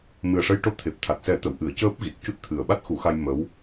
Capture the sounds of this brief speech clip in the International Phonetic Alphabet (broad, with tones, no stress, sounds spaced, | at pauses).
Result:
m ɨ˨˩ ə̯ ʂ ə˧ j ʈ o˧˥ t̪ʰ e˨˩ p̚ t̪ʰ a˨˩ t̚ s ɛ˨˩˦ t̪ ə˨˩˨ w ʔ ɨ˨˩˦ ə̯ c əː˦˥ p̚ ɣ i˨˩ t̚ c u˦˥ t̚ t̪ʰ ɨ˨˩ ə̯ ɓ a˦˥ t̚ x u˨˩˦ x a˧ j m ə˧˥ w